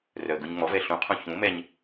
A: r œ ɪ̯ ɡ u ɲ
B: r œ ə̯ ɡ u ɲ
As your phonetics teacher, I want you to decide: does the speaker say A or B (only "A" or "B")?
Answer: B